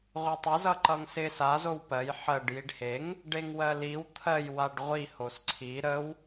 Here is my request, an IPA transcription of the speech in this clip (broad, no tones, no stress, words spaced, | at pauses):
ʁʷetˤɪ zʌǃʌŋsɪ sa zowpɜj ħɜɖ jiɖheŋ | ɖeŋwɜliw t̪ʰɜj waɖʁʷi hosǀʰi ɾəw